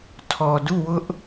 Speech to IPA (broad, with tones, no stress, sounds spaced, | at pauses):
tʰ ɔ˨ d u˦˨ w ʊ˦ ʔ